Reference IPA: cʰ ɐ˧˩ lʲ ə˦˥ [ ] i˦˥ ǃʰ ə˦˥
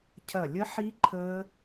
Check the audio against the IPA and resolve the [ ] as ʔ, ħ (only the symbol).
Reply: ħ